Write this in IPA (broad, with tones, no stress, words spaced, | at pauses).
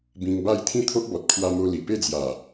bĩ˧ŋba˥˧j t̪ʰĩ˥˧t̪ʰo˦ʔ bɔ˨t̚ kʰwa˧mo˧ li˨˩pe˥˧d͡zja˨˩